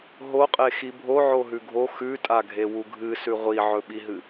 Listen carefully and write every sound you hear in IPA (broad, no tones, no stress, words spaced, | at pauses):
ɦoqʼexi bʱoʕoɦʉ ɡʱo xʉtʼaɡʱewu ɡʱɨsʉ ʁʷiʕɵɓiɦɨ